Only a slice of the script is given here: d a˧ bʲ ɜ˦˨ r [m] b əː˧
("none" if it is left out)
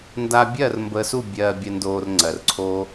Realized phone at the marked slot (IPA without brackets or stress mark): m